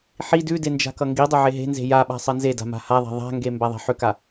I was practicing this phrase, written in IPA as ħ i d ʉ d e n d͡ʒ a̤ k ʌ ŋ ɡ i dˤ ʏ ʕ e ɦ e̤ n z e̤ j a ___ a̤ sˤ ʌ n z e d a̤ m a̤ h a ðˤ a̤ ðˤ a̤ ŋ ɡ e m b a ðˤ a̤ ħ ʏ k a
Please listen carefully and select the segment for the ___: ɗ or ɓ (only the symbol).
ɓ